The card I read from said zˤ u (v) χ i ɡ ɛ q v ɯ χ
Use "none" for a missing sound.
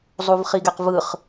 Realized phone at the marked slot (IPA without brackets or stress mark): v